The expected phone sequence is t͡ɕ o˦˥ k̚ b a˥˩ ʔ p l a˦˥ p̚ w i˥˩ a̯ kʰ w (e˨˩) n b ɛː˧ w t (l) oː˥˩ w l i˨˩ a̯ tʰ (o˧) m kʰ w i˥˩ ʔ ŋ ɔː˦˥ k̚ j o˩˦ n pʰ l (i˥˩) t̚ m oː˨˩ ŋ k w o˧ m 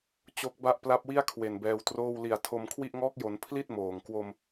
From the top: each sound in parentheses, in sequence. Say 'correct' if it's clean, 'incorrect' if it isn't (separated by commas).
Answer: correct, incorrect, correct, correct